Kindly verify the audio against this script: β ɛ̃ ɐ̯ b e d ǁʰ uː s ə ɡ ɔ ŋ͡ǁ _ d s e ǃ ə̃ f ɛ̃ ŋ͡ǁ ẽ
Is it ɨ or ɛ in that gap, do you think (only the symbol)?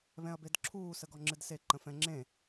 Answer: ɨ